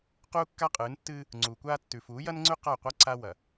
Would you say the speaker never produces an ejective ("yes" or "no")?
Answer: no